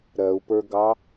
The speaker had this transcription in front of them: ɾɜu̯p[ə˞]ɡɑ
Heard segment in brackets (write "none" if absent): ə˞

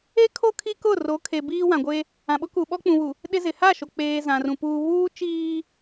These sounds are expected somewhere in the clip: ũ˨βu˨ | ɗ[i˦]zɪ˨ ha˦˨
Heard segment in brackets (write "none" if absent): ɪ˦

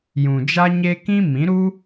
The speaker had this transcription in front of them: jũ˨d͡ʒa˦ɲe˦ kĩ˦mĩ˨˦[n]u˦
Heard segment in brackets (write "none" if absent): ɾ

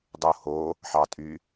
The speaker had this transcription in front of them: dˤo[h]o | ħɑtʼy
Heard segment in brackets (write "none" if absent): h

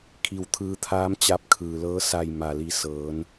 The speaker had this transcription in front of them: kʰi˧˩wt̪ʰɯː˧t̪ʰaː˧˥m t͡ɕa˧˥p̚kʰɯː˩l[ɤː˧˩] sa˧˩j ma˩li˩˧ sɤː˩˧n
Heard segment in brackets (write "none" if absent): ɤː˧˥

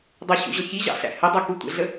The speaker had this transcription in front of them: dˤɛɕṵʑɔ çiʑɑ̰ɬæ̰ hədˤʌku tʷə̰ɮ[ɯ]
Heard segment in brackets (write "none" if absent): ə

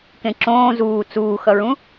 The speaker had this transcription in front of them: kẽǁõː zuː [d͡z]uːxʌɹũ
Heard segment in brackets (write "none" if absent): t͡s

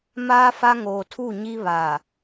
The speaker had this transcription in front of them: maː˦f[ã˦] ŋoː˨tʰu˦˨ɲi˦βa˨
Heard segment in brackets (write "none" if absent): a˦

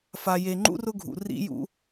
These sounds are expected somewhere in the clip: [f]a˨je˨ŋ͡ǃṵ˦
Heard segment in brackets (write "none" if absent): f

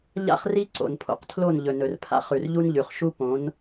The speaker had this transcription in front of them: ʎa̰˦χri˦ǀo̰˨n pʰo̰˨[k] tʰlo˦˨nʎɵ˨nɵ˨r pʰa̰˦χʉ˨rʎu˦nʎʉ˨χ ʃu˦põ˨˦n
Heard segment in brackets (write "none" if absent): q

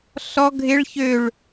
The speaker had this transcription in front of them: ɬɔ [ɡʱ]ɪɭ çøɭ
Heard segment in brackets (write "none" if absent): ɡʱ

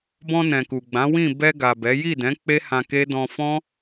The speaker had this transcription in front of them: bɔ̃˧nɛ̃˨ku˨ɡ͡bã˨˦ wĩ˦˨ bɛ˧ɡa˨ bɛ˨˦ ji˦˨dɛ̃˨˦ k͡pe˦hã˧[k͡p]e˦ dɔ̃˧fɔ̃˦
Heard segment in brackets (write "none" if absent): k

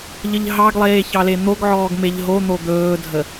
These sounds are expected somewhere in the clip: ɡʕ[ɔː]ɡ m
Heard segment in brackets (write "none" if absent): ɔː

